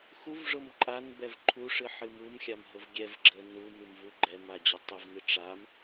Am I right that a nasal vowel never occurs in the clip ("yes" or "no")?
yes